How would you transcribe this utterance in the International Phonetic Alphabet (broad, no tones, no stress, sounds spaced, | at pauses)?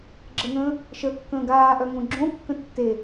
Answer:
ɡ͡ǁ ə ŋ ə̃ː | ʃ ə kː ə̃ː ɡ aː ʔ œ ŋ õ ɡ͡ǁ õ kː ə̃ tː e